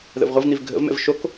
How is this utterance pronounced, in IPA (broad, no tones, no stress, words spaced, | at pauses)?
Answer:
ðə̰vʁʷɐvn̪iv ɡʱə̰vmɛ̰v ʃok